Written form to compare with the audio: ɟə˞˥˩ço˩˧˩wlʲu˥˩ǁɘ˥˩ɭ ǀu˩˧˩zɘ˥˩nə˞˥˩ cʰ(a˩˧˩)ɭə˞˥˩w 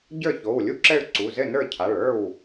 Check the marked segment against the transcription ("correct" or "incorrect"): correct